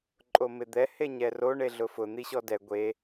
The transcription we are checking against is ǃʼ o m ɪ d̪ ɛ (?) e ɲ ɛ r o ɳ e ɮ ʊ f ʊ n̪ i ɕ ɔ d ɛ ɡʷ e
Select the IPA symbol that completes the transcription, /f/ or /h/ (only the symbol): h